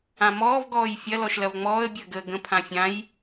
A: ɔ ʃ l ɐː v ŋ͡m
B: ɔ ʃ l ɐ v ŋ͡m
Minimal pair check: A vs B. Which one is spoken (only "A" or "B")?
B